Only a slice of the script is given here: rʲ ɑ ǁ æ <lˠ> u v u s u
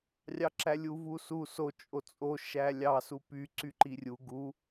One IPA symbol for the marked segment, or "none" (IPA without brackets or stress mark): lʲ